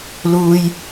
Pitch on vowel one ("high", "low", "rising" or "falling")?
high